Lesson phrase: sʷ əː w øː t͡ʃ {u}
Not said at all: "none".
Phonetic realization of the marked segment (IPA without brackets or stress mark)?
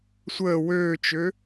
ø